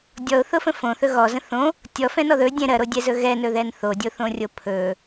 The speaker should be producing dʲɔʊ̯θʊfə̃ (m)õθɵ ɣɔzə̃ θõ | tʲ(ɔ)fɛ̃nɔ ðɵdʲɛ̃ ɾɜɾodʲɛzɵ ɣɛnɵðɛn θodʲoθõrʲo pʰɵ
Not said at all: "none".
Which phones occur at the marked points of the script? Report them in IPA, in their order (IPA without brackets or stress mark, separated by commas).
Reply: f, ɔ